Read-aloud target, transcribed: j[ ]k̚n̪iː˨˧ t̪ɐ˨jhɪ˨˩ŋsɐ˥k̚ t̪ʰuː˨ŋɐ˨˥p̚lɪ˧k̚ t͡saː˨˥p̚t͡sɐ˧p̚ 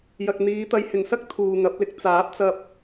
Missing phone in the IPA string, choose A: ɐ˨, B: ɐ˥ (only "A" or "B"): A